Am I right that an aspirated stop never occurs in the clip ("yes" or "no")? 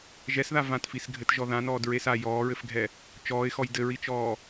yes